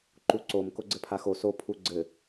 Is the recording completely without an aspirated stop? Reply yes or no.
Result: no